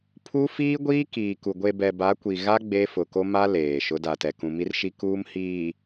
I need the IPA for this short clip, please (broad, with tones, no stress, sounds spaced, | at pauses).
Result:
pʰ uː˦ f iː˦ ɡʷ iː˦ k iː˨ k u˨ ɡʷ e˨ b ɛ˨ b a˨˦ kʷ i˨ ɣ a˦ ɡ͡b e˦ f ʊ˨ k o˦ m a˦ l eː˨ ʃ ʊ˨˦ d a˨ t ɛ˨ k ũ˨ m i˦ r ʃ i˦ k uː˦ m h iː˨